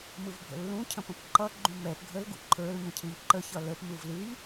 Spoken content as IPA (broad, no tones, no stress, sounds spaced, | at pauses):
m ɯ v bʱ ə̰ lː ũ cʰ ə̃ p ə̃ p ǃ ʌ ɡ͡ǃ ũ m ɛ p ɡʱ ə l ɡ ṵ ǃʰ ə˞ l ɲ ə̃ cʰ ɨ ʎ ǃ ə ç ʌ l ə p m ɯ v l ɨ ʎ